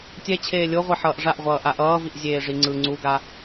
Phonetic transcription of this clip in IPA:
tʲ ɛ t͡ɕʰ eː lʲ o ʁʷ e ħ ʌː ʔ ʐ a ʔ ʁʷ ʌː ʔ a ʔ ʌː v i ʔ zʲ eː ʐ i ŋ͡ǀ ɯ ŋ͡ǀ u ɡ a

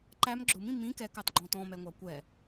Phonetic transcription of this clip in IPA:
ǃ æ m ɡ͡ǁ ʊ m ĩ m ĩ k ɛ k ɑ t ɡ͡ǃ ɔ̃ t ɔ̃ m ɛ ŋʷ ɑ kʷ ɛ

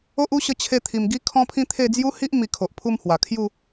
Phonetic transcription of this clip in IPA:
o˦ ʔ u˦ ɕ ə˧ t͡ɕʰ e˧ t̪ʰ i˨˩ m ɡ i˦ kʰ ɔ̃˦ pʰ ĩ˦ t̪ʰ e˥˧ d͡z j u˦ h i˦ ʔ m i˧ kʰ o˨ ʔ pʰ u˥˧ m h w a˨˩ kʰ j u˥˧

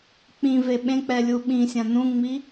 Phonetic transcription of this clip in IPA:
k͡p ĩ v e ɓ ẽ k͡p ɛ lʲ u ɓ ĩ sʲ ã n ũ ŋ͡m i

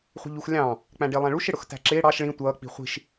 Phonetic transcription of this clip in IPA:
χʷ ɛ̤ ʎ u x lʲ ɑ̃ | k͡p æ̃ ɖ ɪː lˠ æ̃ ɭ u ʃ ɪ ɽ ʊ x t æ̤ ǁ ɪː ɽ ɑ ʃ ɭ ĩ tʷ ʌː k͡p i̤ χʷ i̤ ʃ

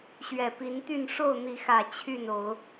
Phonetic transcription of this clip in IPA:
ɕ ɥ ɛ˨˩ p i˨˦ n t̪ y˥˨ n ʂ o˥˨ ʊ̯ n̪ i˨˦ x ä˨˩ t͡ɕʰ y˥˨ n o˨˦ ʊ̯

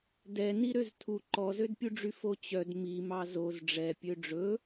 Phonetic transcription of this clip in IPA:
d ɛ n i ɾ ø z tʰ u ǃ ɔ z ø d pʲ u ɖ͡ʐ y f o t͡ɕ œ d m i m ɑ z o z ɖ͡ʐ ɛ pʲ ø ɖ͡ʐ ɵ

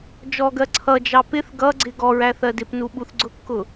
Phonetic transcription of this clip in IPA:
d͡ʒ ɔ ɡ ɜ ǀʰ ʌ d͡ʒ ɑ p ɪ θ ɡ ʌ ɡ͡ǀ ɪ ɡ ɔ ɹ æ θ ɜ d ɪ p n u ɓ u θ ɡ͡ǀ ʊ kː ʊ

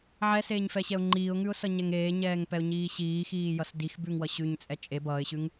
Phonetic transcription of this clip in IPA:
ʕ ɛ s eː ɲ f ɛ ɕ ɛ ʊ̯ ŋ͡ǃ iː ʊ̯ ŋ ʉ ʊ̯ s ʌ ɲ ɛ ŋ eː ɲ ɛː ŋ p ɛ ʊ̯ ɲ iː ɕ iː x iː j ʌ s d i x b ʉ ŋ w ʌ ɕ ʉ ɲ t͡sʼ ɛ t͡ʃʼ e b ʌː ɪ̯ ɕ ʉ ŋ

